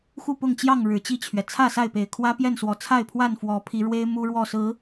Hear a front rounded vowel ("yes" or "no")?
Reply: no